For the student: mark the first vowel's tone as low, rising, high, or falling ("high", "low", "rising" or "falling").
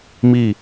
falling